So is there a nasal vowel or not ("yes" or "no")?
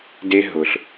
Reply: no